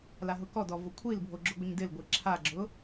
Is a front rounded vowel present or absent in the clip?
absent